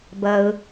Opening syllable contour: low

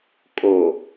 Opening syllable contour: low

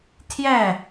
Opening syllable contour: falling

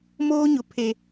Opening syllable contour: high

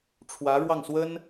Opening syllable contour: rising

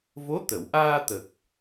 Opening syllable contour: rising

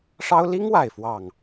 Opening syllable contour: high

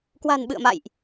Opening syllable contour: low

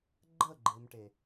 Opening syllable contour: falling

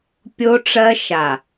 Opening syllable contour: high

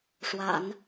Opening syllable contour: low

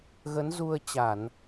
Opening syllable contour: rising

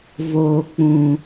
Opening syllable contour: low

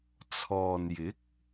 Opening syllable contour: low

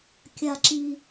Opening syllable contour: high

